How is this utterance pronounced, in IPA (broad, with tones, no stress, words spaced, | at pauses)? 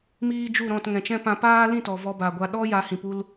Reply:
miː˦ d͡ʒu˦˨ɾɔ̃˦˨t ŋɛ̃˨t͡ʃɛ̃˦ pã˧paː˦lĩ˦˨tɔ˨ vɔ˧ba˨ɡʷa˧ ɗɔ˦ ja˧hĩ˨pu˧l